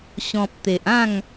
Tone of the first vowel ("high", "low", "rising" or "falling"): low